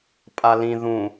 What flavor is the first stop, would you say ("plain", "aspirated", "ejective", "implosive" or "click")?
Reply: ejective